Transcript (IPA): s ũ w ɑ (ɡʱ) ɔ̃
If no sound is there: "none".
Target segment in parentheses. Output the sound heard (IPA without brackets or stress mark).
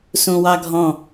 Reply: ɡʱ